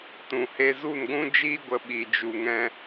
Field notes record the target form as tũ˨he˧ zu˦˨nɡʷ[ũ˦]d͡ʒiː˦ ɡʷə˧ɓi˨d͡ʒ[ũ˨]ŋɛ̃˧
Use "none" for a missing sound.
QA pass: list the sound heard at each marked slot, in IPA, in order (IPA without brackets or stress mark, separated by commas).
ũ˦, u˨